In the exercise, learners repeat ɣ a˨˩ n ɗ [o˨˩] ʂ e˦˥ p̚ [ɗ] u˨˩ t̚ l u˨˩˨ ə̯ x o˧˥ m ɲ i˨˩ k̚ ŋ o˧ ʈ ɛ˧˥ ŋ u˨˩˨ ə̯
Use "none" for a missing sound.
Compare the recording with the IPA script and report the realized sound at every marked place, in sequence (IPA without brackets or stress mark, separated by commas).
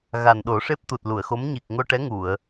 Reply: o˨˩˦, t̪